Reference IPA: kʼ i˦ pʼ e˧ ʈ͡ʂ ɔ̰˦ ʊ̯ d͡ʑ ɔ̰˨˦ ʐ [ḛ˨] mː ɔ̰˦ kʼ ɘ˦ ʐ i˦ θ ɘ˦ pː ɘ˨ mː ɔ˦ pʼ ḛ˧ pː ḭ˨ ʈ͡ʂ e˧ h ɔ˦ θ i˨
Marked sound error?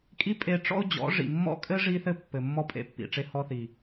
yes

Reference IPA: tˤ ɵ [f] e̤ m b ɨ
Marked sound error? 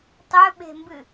yes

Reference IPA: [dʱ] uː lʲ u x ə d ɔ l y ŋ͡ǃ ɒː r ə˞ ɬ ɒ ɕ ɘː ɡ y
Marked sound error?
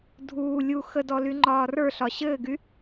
no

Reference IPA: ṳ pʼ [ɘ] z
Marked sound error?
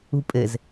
no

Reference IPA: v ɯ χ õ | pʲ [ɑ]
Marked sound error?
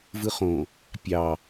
no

